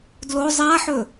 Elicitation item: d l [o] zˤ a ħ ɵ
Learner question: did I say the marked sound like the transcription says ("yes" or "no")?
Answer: yes